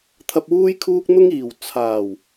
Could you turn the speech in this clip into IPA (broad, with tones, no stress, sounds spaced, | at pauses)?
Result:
t̪ʰ ɐ˨ p̚ w uː˧ j kʰ uː˧ k̚ n̪ ʊ˧ ŋ iː˨˩ w t͡sʰ aː˨˩ w